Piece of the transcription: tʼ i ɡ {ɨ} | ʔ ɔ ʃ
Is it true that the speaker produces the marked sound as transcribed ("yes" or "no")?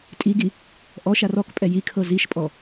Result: no